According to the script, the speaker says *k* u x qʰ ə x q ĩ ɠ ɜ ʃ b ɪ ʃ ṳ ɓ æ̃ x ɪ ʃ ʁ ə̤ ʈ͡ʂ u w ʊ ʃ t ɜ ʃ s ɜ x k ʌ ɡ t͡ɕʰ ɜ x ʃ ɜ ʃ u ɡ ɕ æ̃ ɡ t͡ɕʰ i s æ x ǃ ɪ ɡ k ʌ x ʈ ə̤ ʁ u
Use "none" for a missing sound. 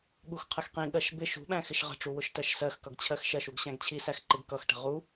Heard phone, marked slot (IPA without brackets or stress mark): ɠ